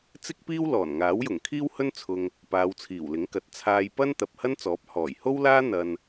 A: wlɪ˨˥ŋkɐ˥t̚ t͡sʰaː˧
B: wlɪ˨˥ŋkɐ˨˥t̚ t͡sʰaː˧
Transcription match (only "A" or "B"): B